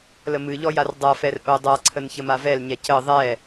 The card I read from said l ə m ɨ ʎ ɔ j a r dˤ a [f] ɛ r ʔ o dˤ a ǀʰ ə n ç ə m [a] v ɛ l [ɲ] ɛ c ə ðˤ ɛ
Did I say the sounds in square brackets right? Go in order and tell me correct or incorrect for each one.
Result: correct, correct, correct

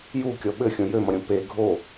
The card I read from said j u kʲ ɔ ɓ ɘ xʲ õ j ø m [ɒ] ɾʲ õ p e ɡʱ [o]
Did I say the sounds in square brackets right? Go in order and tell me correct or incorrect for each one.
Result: incorrect, correct

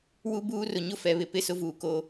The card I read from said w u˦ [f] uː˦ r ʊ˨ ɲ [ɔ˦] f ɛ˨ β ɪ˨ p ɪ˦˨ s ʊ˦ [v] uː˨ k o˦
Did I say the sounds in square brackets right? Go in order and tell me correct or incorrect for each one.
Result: incorrect, incorrect, correct

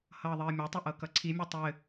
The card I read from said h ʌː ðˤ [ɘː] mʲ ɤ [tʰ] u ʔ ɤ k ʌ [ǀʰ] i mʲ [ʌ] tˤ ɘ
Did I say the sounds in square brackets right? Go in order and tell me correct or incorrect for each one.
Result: correct, incorrect, correct, correct

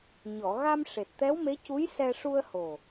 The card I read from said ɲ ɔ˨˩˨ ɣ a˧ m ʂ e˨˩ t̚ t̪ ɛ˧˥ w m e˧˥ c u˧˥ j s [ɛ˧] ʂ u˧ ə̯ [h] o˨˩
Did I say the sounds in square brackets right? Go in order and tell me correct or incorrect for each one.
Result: correct, correct

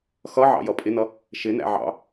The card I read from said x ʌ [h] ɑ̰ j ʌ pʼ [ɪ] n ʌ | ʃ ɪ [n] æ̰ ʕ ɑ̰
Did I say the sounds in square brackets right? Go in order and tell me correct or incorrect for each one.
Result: incorrect, correct, correct

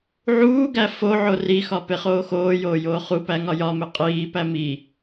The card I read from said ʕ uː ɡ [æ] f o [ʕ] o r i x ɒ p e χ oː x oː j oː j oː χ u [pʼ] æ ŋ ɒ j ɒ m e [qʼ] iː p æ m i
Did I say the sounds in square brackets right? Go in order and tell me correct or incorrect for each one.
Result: correct, correct, incorrect, correct

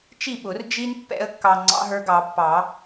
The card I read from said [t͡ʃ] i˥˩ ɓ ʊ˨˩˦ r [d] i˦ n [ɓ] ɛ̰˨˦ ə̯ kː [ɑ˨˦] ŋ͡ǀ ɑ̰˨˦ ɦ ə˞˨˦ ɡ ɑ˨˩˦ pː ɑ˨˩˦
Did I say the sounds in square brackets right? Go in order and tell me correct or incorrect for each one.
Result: correct, incorrect, incorrect, incorrect

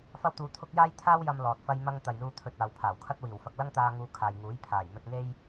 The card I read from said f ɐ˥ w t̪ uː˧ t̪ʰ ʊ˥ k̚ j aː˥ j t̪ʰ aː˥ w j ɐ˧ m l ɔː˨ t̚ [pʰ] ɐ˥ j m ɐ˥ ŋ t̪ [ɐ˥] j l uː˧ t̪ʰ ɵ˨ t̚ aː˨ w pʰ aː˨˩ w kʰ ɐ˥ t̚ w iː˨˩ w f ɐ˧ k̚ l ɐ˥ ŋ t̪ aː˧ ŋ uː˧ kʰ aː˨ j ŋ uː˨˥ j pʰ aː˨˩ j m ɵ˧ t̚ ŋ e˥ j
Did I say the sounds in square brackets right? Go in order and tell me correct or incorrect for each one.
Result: incorrect, incorrect

